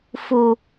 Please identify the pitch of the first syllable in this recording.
low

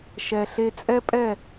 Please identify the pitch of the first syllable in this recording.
low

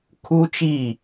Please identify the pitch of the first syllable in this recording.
high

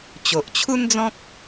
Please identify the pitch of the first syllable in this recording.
low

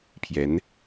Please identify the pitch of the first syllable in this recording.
rising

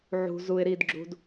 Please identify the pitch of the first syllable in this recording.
low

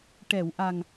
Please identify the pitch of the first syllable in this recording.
low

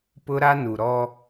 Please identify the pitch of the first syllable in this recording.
high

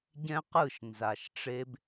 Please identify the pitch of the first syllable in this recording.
high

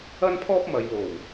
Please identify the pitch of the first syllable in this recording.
high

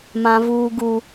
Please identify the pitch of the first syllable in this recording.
high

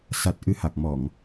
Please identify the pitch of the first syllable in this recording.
low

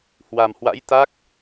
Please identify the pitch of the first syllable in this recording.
low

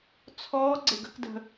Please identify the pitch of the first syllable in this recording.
rising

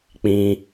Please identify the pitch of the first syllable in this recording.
high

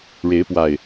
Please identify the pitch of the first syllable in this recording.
rising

